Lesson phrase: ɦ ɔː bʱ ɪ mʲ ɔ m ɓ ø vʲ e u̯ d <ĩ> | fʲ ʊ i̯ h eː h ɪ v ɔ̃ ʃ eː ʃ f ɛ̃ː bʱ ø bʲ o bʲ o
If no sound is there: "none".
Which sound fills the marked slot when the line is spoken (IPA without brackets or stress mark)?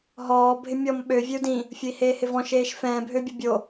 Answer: ĩ